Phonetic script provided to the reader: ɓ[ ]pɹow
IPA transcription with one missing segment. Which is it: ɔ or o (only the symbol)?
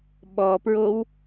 ɔ